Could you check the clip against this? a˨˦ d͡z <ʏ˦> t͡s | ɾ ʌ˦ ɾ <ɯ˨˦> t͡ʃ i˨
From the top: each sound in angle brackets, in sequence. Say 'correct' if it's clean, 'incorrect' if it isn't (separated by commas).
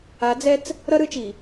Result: incorrect, correct